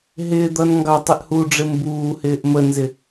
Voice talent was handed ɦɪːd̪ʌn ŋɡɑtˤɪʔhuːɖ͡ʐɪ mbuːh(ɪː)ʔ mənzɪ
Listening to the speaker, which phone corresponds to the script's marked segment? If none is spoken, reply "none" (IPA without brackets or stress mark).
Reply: ɪː